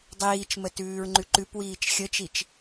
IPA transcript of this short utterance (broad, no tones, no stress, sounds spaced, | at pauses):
dˤ iː t͡ʃ m ə t ʉː ɹ ŋ͡ǃ ʉ ǃ ʉ p w iː t͡ʃ xʲ ə t͡ʃ i t͡ʃ